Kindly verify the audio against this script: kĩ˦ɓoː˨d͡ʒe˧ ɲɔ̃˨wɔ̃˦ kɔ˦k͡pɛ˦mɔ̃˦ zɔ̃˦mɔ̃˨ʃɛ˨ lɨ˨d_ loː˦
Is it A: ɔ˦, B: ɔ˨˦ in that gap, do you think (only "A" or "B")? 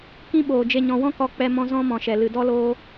A